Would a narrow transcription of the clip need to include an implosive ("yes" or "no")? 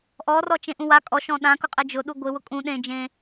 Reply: yes